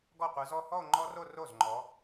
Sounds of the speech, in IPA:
ɡ ɔ˥˩ qʷ ɯ˨˦ z ɔ˥˧ h ɔ˥˧ o̯ ŋ͡ǃ ɔ˦˥ r o˥˧ r o˥˩ z ŋ͡ǃ ɔ˨˦

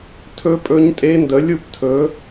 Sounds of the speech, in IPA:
tʰ ɵ˦˥ pʼ ɵ˦˥ ɲ tʼ e˦˥ n d ə˨˥ lʲ u˥˧ p tʰ ɵ˨˥

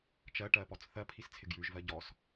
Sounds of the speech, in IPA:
t͡ʃ ɜ ʈ ɜ p ɔ t͡s θ ɜ pʰ i s t͡sʰ ɪ ɡ j ʉ ʒ v ɜ ɟ ɔ s

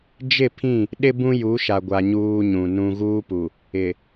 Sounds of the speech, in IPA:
d͡ʒ ɪ˦˨ pʰ ĩ˦˨ | ɗ ɪ˦ b ũ˦ j u˨˦ ʃ a˨ ɡʷ a˨ ɲ uː˦ ɲ ũ˨ n ũ˨ ɣ uː˦ p u˨ | ɪ˨

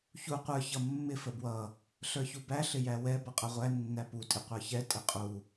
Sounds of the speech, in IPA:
ç u qʷ ə˞ ç ʌ mː ɪ f ə b w ʌ | ɬ ə˞ ç u b æ ɬ ɪ j æ w ɛ b ʌ qʼ ʌ ʁʷ æ nː æ p u tʼ ɪ qʷ ə˞ ç ɛ tʼ ɪ qʼ u

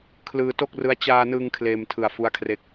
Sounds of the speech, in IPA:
kʰ l ɯː˧ t o˥˩ k̚ r ɯ˦˥ a̯ t͡ɕ aː˧ n ɯ˧ ŋ kʰ l eː˧ m tʰ ɯ˨˩ a̯ f u˦˥ a̯ kʰ r e˦˥ k̚

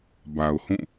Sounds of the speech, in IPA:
b a˨ ʊ̯ h ũ˦˨

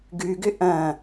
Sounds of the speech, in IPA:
ɡ ʉ ɡ ʏ ʔ ɐ̃

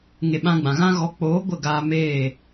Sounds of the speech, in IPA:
ŋ e˧ ɓ ã˦ ɡ͡b ã˨ ɣ ã˦ ɣ ɔ˧ k͡p oː˨˦ ɡʷ ə˦˨ ɡ aː˧ m eː˦˨

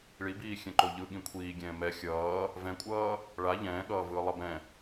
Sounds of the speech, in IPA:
ɭ i b iː xʲ ɛ̃ ǃ o ʎ ɯ ɠ ĩ kʷʰ iː ɡʲ ɛ̃ː m ɛ xʲ ʌː | v ɛ̃ kʷʼ ʌː | ɭ a ʎ ɛ̃ː ɠ ʌː v ɯː lˠ ʌ b ɛ̃

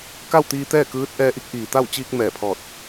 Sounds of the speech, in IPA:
k a˥˨ w t̪ iː˧ t̪ ɛː˥˨ k ɯː˧˥ t̚ ʔ ɛː˧ ʔ i˧˥ k̚ ʔ iː˩ t̪ a˥˨ w t͡ɕ iː˧ k̚ m ɛː˧˩ pʰ ɔː˧˩ t̚

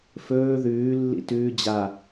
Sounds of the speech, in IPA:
f ɵː ð ʉː lː ḭ t ʉː d͡ʑ a

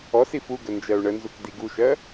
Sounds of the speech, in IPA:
ɔ s i f u ɡ ə n d͡ʒ ɜ u̯ ɳ ə n z u k d i ɡ u ʃ ɜ

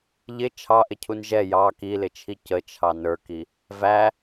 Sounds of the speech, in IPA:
ʎ ɪ t͡ʃʰ ɑ ʔ ɪ cʰ u n ʒ ɛ j ɑ k i l ɪ t͡ʃʰ i c ə t͡ʃʰ ɑ n ə˞ k i | v æ

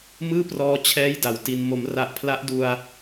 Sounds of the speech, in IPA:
m ɯː˥˩ p r ɔː˧ t͡ɕʰ ɛː˦˥ j d a˨˩ w t i˧ n m o˩˦ m r a˨˩ ʔ pʰ l a˦˥ ʔ d u˧ a̯

